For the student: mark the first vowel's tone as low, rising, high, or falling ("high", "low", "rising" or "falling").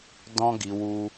high